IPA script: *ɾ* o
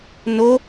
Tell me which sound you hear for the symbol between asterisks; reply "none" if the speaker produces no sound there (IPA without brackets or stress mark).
n